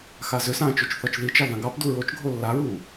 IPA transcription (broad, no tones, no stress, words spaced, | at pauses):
xazʏsãː t͡ʃot͡ʃθɒt͡ʃðit͡ʃɑ ðãɡɑpdu ɹot͡ʃɡʱo lːaɹuː